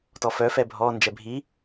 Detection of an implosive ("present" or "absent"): absent